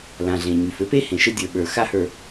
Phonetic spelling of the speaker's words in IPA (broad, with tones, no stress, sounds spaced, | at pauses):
l ã˨ ɮ ẽ˨ ɲ y˨ f ɘ˦ p e˦ h ẽ˨ ʃ ɘ˦ dʲ ə˞˨ ɓ ə˞˨ x a˦ h ə˞˨